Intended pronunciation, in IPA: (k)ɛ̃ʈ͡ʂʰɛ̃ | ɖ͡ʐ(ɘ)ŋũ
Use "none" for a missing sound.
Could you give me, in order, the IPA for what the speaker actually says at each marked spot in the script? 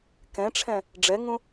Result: k, ɛ

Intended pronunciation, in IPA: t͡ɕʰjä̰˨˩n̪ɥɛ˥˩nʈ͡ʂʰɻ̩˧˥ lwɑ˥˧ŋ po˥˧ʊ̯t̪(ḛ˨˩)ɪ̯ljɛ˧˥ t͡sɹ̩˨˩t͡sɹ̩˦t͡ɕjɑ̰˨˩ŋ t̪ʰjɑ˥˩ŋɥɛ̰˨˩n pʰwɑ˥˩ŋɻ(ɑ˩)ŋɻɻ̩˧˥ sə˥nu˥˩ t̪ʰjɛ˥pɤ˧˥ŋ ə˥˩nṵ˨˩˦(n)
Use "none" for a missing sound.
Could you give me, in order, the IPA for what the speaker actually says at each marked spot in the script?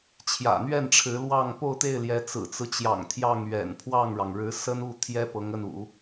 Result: e˥˩, ɑ˩, none

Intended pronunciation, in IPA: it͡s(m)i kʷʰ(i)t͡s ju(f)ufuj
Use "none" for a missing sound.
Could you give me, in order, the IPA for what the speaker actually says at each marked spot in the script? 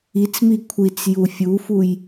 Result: m, i, fʲ

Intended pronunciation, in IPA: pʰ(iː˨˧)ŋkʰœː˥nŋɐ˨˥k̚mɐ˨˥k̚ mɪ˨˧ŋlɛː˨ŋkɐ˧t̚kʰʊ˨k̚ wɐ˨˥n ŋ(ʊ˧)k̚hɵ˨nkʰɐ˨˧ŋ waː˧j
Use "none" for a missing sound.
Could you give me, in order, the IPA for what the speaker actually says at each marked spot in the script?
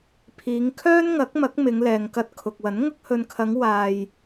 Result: iː˨˧, ʊ˧

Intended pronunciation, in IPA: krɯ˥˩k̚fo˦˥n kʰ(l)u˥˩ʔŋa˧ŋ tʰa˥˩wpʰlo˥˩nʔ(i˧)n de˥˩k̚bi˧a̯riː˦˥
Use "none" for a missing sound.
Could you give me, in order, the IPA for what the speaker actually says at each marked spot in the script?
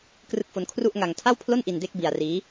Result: r, i˧

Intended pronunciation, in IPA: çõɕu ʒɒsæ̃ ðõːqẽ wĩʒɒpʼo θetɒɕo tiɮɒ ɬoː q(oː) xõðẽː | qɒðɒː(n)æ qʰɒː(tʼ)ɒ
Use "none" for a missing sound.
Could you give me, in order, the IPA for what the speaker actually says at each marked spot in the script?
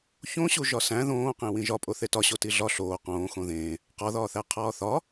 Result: õː, θ, θ

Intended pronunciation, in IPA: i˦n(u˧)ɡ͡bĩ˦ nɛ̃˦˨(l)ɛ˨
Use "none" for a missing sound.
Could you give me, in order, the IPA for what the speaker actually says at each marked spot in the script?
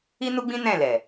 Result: u˦, l

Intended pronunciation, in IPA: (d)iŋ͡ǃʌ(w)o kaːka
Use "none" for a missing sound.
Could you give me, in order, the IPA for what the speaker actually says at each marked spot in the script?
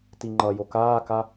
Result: t, j

